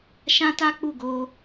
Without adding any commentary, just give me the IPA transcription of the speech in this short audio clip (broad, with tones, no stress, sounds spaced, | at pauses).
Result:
ʃ ã˦ t a˦ k͡p u˦˨ ɡ o˧